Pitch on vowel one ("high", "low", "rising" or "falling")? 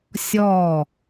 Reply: falling